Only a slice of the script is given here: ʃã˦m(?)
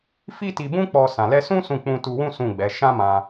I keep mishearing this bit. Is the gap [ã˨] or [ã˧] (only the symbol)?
ã˧